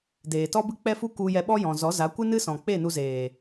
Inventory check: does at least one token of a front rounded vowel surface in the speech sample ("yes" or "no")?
no